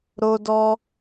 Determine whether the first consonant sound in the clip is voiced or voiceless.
voiced